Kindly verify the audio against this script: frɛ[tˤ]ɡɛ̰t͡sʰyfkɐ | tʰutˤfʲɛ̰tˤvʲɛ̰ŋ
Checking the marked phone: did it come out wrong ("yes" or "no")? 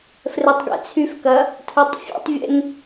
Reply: no